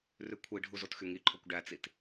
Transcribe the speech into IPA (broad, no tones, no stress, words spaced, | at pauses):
rʉkʷʰiɖʱu zotxyŋiǃʰokʷ ɖæt͡sit